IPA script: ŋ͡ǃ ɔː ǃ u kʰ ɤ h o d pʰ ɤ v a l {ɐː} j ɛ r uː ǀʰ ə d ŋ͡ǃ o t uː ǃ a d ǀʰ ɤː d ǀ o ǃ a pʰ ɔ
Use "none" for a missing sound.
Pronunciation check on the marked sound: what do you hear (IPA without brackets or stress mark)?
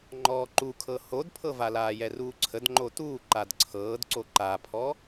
aː